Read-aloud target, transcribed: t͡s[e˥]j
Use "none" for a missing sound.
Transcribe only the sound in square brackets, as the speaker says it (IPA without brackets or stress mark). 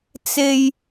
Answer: e˥